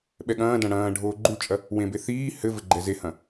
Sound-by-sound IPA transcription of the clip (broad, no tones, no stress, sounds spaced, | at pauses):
ɓ ɛ ɠ ɐ̃ː d ɐ̃ ɽ ɐ̃ː ɖʱ oː ɡ͡ǃ u t͡ʃʼ ɐ | w ẽ b e θ iː h ɘ v ɘ ɡ͡ǃ ɛ z e h ɐ̃